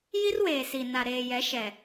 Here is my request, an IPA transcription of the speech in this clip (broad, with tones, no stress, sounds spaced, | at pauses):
j i˦ r w eː˨ s i˨ n a˨ ɾ eː˨ j ɛ˨˦ ʃ ɛ˨